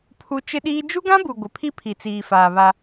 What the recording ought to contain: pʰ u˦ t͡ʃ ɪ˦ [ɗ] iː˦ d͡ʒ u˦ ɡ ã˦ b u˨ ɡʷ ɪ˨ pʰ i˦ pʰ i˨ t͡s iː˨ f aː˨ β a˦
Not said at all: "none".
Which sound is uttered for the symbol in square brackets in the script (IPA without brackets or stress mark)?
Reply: ɗ